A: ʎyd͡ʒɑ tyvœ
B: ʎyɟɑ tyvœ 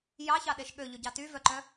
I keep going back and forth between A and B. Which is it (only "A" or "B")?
B